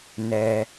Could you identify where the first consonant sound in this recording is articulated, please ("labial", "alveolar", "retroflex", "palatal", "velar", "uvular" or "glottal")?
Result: alveolar